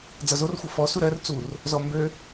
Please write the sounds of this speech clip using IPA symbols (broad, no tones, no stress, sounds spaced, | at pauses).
d͡z ʌ z o r xʷ ʌ f ɔ s u ɾ ɜ r t͡s u r | z ɔ m b ø